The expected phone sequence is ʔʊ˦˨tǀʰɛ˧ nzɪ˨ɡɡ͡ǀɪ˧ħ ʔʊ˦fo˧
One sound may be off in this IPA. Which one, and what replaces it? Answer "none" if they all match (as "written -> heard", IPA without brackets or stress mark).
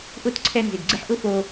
none